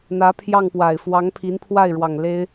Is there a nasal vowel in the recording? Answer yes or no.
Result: no